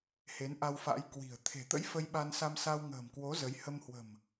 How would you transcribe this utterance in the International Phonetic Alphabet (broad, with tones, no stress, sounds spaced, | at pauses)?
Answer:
h e˨˦ n ʔ a˧ w f a̰˧˥ j k w i̤˨˩ ə̯ t̪ʰ e̤˨˩ t̪ ə̰˧˥ j f ə˧ j ɓ a˧ n s a˧ m s a˧ w ŋ ə̤ː˨˩ m k w o˨˦ z ə˨˦ j h ə˧ m h w ə̤˨˩ m